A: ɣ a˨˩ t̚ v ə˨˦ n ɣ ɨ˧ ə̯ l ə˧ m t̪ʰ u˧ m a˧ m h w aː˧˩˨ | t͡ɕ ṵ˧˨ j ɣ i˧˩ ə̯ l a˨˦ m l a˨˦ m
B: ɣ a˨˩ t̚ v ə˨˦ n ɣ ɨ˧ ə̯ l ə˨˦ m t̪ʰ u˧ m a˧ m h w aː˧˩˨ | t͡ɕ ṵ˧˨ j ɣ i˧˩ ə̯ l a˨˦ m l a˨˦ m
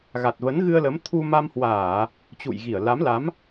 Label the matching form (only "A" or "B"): B